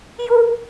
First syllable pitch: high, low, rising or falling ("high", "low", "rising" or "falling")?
high